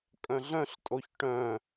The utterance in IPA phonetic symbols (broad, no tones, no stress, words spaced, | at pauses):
kʼœ̃ɮœ̃ɬtʼoç ʈœ̃